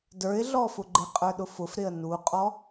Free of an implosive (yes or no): no